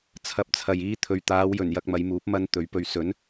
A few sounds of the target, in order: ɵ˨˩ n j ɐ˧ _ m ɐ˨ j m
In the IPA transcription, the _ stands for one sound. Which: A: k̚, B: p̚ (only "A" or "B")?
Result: A